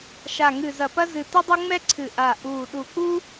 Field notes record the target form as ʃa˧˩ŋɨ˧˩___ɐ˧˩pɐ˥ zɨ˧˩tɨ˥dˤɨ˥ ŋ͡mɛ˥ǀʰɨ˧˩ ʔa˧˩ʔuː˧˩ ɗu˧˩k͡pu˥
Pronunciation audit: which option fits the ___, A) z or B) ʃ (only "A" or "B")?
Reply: A